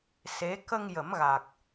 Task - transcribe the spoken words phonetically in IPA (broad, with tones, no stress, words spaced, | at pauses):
se˧˥ kə˧ŋ jə˨˩˦mɣa˨˩k̚